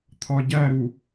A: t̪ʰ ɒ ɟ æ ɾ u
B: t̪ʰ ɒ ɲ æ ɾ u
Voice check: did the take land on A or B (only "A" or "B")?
A